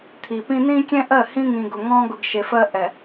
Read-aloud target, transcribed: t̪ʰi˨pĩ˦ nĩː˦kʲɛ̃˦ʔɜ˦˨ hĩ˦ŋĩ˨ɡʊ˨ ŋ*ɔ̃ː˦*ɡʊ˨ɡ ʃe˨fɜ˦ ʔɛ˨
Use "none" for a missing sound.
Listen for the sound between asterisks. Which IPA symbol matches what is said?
ɔ̃ː˦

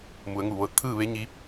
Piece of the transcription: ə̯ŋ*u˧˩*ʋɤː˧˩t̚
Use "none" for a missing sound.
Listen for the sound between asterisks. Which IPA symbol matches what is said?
u˧˩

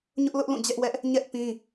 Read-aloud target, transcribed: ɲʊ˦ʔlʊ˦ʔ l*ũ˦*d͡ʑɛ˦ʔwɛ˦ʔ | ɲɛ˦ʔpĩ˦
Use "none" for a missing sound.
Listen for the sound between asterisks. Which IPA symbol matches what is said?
ũ˦˨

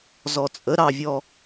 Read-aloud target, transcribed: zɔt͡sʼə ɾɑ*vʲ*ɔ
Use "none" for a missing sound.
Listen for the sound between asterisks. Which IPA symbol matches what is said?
vʲ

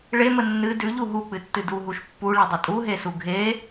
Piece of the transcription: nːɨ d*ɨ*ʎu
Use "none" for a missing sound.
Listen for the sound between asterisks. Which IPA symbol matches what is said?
ʉ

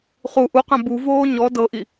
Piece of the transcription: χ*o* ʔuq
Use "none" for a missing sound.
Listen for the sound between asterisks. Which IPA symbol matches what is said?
u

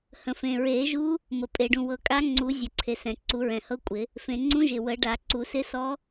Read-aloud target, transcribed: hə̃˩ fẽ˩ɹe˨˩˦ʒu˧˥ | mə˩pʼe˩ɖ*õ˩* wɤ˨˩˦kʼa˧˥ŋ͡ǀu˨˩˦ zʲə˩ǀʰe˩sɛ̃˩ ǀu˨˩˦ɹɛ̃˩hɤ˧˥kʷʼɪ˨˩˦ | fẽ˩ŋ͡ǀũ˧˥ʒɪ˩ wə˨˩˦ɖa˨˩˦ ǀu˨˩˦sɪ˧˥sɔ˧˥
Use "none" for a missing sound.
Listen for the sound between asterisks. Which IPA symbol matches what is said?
ũ˩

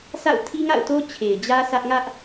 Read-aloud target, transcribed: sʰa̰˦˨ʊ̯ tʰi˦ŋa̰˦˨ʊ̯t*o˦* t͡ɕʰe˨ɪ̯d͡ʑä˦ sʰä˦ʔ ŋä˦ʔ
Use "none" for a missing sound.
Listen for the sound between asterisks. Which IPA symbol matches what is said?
o˦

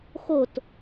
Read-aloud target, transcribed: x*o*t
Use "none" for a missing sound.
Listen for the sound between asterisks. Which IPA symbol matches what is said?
o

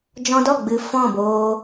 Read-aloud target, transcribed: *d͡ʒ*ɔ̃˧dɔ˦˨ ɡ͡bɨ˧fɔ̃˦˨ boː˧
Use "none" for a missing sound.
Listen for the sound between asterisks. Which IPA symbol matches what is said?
d͡ʒ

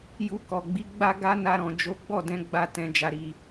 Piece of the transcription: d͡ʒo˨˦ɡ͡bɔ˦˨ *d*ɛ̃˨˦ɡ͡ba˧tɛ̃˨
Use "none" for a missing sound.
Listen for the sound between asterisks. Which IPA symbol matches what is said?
d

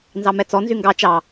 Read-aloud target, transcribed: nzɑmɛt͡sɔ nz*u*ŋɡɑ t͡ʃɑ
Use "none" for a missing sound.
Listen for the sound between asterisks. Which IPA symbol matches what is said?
y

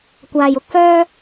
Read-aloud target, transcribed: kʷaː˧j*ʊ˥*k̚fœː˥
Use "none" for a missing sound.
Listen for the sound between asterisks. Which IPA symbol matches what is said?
ʊ˥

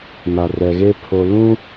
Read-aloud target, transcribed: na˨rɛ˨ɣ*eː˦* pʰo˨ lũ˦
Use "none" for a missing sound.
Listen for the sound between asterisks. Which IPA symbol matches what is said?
e˦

